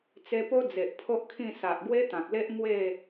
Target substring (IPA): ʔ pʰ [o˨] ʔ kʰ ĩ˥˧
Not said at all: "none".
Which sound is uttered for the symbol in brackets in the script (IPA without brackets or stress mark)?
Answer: o˦